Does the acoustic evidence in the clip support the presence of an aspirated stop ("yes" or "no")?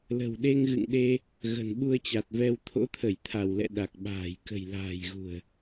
yes